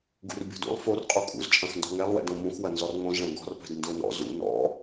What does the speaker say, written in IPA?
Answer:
ɡ ṵ r bʲ o̤ d ṵ lˠ f o r qʼ u kʼ ṵ z t͡ʃʼ ɐ̃ x n d ɔ̤ ŋ ɛ lˠ w ɛ̰ d õ m ũ x w ɐ n z ɔ r ŋ õ z ɭ ɛ̃ ɡ ɔ̤ r p ɛ̤ d n d ʊ n ɔ̰ z ṵ n ɔ̰

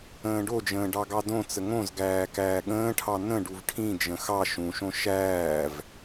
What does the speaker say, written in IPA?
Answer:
ə̃ː ɖ o d͡ʒ ə̃ː ɖ ɑ ɡ ɑ d õ t͡s ə ŋ õ z ɡ æː k æː ɠ ə̃ː ʈʰ ɑ n ə̃ ɖ u v ʈʰ ĩ d͡ʒ ə̃ x ɑ ʃ ũ ʃ õ ʃ æː v

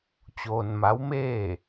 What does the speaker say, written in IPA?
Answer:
t͡ɕ oː˧ n m a˧˥ w m eː˥˨

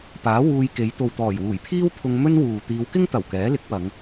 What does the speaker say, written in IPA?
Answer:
p aː˨˥ w uː˧ j k e˨˧ j t̪ o˨ w t̪ ɔː˨˩ j w uː˨˩ j pʰ iː˥ w pʰ ʊ˧ ŋ m ɵ˥ n w uː˨ t̪ iː˨˧ w k ɪ˥ ŋ t̪ ɐ˨˩ w k ɛː˨˥ l ɪ˨˥ k̚ w ɐ˨˧ ŋ

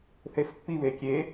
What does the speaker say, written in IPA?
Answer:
θ e f pː i β e kʲ e

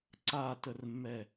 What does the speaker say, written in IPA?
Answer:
ǀ a t ə r mː ɛ

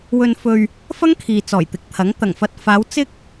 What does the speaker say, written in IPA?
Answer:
w ɵ˨ n f ɵ˨ ɥ | f ɐ˥ ŋ kʰ iː˨ t͡s ɔː˨˩ j t̪ ɪ˨˥ k̚ t̪ʰ ɐ˨˥ ŋ t̪ ɐ˨˩ ŋ f ɐ˨ t̚ f aː˨˧ w t͡s ɪ˥ k̚

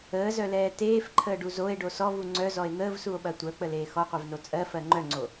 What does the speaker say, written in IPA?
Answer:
əː z œ l ɛː t eː f ǃʰ əː ɖ u z o e̯ ɖ o s ɔ v u ŋ͡ǀ œ z ɔ e̯ n̪ əː v s u o̯ ɓ ɐ tʷ œ k͡p ə l eː x ɔ qʷ e v n o t͡sʼ ɜ f ɜ ŋ͡ǃ œ ŋ͡ǀ o

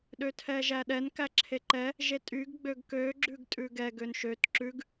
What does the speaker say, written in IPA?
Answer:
ɗ ø tʰ ɛ ʒ æ ɗ ɛ n k æ ǁʰ e ǃ ɛ | ʒ e tʼ y ɡ ɡ͡b ø ɡ k ø ɡ͡ǁ ʉ ɡ tʼ ʉ ɡ ɛ ɡ ø n ʃ ø t ǁ ʉ ɡ

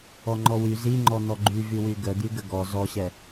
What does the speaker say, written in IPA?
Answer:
ɔ ŋ͡ǃ ɔ w y z i ŋ͡ǃ ɔ n̪ ɔ ɡ͡ǃ y v y w y ɡ ə d̪ y ɡ ə ɡ ɔ z ɔ ɕ ɛ

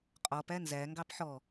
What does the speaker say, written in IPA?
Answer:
qʼ ɔ p æ n z æ ŋ ɡ ɑ p ħ ɔ

